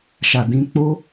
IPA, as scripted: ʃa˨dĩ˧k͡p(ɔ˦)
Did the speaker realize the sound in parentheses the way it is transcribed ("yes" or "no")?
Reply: no